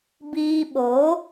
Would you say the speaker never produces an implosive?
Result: no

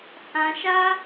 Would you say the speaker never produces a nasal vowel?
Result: no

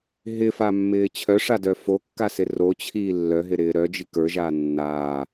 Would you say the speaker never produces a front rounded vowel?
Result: no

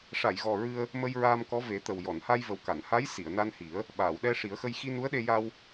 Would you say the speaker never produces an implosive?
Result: no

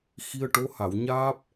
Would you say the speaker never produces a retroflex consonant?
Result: no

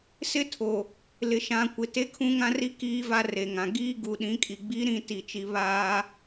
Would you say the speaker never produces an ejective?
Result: no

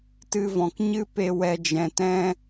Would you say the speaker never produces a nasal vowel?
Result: no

